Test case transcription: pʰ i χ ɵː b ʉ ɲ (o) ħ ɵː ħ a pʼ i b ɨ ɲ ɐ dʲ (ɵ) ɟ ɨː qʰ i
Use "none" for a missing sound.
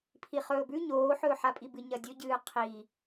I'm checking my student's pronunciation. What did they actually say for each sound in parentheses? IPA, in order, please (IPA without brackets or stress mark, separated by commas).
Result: oː, ɵ